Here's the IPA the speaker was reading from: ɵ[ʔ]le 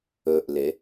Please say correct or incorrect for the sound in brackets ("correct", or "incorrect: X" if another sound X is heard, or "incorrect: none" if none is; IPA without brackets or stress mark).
correct